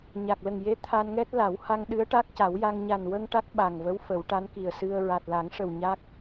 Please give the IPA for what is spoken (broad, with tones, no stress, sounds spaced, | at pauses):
ɲ a˨˩ k̚ l ə˨˩ ŋ j e˧˥ t̪ʰ a˧ n ŋ ɛ˦˥ t̚ l a˨˩˦ w h a˧ ŋ ɗ ɨ˧˥ ə̯ ʈ a˦˥ k̚ c a˨˩˦ w j a˧ ŋ ɲ a˨˩ n w ə˧ ŋ ʈ a˦˥ k̚ ɓ a˨˩ ŋ v ə˧˥ w f ə˨˩˦ w ʈ a˧˥ n k i˨˩ ə̯ s ɨ˧ ə̯ ɹ a˨˩ t̚ l a˨˩˦ ŋ ʂ ə˨˩ w ɲ a˦˥ k̚